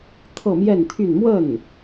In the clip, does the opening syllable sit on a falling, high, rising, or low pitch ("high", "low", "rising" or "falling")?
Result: falling